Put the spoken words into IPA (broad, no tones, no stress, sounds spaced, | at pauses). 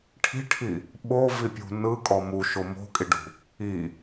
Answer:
ʈʰ i̤ ʈʰ i | ɓ o v i pʲ ṳ n ɯ kʼ ɔ m u ʃ o m o̤ kʼ i ɖ ṳ | i